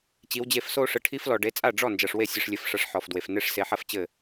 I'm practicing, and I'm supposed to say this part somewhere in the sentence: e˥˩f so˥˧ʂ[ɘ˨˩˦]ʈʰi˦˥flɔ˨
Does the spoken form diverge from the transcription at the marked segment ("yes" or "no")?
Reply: yes